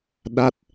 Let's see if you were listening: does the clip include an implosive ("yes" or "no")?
yes